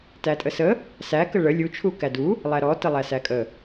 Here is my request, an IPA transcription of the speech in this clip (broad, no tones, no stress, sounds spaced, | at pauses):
t æ tʼ ə s ə | s æ k ə ɭ ə lʲ u t͡ʃʰ u k æ d u | lˠ æ ɾ ɔ t ə lˠ æ s æ kʼ ə